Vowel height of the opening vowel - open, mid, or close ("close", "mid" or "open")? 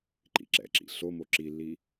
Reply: close